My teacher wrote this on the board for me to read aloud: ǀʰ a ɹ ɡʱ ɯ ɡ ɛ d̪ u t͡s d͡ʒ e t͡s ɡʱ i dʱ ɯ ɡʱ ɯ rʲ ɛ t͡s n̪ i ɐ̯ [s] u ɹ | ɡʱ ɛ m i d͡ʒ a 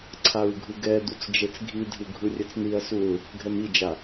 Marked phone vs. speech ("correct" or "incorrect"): correct